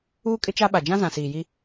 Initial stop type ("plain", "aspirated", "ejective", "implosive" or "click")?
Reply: ejective